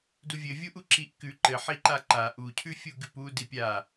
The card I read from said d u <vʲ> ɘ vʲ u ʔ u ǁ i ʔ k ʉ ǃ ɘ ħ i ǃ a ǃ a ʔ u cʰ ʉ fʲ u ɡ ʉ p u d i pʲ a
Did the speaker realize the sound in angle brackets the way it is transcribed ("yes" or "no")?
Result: yes